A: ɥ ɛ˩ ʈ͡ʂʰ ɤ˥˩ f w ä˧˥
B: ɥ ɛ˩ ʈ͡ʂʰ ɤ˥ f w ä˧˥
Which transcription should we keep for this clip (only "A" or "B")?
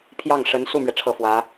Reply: A